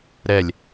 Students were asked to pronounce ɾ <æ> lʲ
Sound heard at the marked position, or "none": ɛ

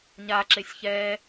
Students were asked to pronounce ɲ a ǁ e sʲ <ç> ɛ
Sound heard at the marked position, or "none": ç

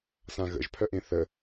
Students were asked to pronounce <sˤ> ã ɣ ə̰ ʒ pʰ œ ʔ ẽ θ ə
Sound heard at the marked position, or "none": s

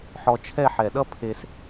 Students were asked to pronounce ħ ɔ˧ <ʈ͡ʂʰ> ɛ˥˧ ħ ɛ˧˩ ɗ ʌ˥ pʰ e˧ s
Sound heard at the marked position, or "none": t͡ʃʰ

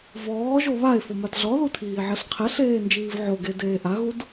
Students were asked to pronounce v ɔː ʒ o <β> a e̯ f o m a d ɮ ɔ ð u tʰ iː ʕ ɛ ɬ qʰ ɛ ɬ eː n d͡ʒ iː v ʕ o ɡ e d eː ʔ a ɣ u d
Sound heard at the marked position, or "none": β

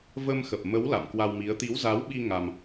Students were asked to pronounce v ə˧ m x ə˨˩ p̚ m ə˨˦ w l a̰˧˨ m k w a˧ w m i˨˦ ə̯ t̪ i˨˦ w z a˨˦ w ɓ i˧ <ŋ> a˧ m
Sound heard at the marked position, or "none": ŋ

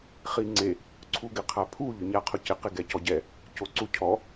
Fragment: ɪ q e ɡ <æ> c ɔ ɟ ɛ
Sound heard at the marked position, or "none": ɛ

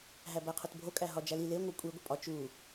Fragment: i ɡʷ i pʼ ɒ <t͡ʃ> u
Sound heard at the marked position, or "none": t͡ʃ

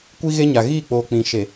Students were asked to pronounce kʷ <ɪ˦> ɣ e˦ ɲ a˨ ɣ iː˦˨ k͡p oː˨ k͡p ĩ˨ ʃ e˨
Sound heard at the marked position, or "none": i˦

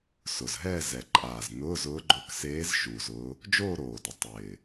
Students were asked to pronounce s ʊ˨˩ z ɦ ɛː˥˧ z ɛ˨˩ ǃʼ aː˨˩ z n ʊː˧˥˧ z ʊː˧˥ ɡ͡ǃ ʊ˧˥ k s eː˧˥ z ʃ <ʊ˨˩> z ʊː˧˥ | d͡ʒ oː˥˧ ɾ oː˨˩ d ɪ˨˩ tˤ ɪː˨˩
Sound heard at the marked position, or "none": u˨˩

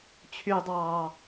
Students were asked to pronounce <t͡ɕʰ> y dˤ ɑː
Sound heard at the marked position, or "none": t͡ɕʰ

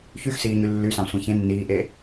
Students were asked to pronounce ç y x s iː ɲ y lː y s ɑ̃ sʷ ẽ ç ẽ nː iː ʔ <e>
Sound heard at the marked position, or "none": e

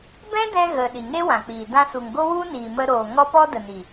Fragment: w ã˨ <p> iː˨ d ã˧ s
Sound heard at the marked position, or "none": k͡p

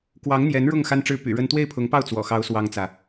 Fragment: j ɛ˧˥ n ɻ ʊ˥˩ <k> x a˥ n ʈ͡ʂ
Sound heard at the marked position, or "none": ŋ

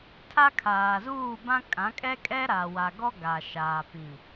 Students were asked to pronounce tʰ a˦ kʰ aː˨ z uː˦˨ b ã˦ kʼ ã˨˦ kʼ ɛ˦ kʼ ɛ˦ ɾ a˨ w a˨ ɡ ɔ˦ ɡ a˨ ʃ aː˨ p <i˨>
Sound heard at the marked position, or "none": ĩ˨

